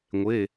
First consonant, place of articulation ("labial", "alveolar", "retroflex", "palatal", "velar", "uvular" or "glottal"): velar